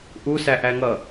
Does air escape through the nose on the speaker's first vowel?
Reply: no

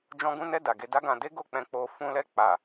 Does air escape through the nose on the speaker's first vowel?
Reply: yes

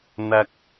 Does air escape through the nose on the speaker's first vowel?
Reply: no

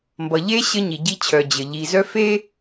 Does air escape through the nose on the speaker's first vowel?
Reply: no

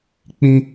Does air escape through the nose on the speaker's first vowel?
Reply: yes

